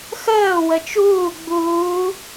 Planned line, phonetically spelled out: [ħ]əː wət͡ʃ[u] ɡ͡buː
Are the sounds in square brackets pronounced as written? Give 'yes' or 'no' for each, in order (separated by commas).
no, no